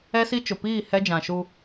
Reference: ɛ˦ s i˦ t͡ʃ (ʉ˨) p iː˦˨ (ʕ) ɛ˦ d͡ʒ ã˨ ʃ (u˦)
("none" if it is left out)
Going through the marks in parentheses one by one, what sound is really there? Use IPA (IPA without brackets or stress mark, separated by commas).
ʊ˨, h, u˦